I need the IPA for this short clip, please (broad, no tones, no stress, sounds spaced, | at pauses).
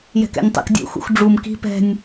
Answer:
j ɛ̤ k ɛ̰ nʲ tˤ ɛ̰ k dʲ ṵ x ṵ x ɖ͡ʐ u m k i̤ p ɛ̤ nʲ